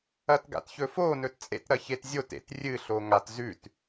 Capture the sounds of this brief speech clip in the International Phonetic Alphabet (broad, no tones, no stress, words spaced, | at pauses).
ɐtɡa̰tçɵfo nɵtt͡sʼḛt ɾɐçetzʲot ḛtrʲɨ ɬoŋat zʉt